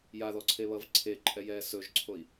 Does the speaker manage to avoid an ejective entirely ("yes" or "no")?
no